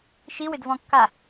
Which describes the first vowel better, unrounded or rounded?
unrounded